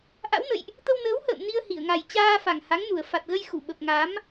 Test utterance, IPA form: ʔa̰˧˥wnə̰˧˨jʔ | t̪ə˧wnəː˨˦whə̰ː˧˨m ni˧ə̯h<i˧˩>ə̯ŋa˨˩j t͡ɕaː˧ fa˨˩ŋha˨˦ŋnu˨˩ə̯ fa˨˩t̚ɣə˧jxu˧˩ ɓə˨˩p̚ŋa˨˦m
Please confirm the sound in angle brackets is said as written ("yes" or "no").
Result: yes